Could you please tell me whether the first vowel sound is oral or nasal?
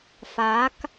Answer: oral